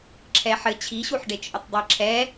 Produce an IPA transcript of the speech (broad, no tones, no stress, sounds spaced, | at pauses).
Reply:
ǁʰ ɛ ħ ɘ t͡ɕʰ i ɕ u ħ ɖ e t͡ʃʼ ɘ tˤ dˤ i ǁʰ ɛ